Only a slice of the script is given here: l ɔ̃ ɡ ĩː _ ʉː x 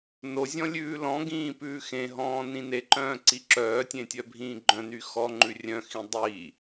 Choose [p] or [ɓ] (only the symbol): p